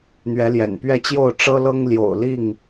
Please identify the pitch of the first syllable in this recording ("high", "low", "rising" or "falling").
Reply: rising